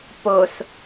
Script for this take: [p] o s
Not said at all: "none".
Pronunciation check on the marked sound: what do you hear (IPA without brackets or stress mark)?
p